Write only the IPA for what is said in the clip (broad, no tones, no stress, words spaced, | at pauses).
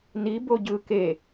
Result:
ni boɟɯ ke